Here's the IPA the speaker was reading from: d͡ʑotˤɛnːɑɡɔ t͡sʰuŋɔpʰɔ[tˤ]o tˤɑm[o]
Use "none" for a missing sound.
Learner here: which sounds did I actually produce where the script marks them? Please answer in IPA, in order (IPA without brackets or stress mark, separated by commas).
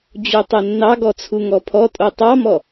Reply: tʼ, ɔ